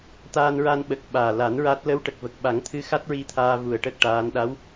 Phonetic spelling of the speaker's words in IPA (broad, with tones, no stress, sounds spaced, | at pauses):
t̪ aː˧ n ɹ a˧ n ɓ ə˨˩ k̚ ɓ aː˨˩ l a˨˩˦ n ɹ a˦˥ t̚ l ə˧˥ w ʈ ə˨˩ k̚ v ə˨˩ k̚ ɓ a˨˩˦ ŋ t̪ʰ ɨ˧˥ x a˦˥ t̚ ɹ i˧ t̪ʰ aː˧ v u˨˩ ə̯ ʈ ə˦˥ k̚ ʈ aː˧˥ n ɗ a˧˥ w